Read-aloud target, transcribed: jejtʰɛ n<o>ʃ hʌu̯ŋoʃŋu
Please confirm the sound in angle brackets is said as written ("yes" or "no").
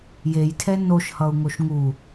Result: yes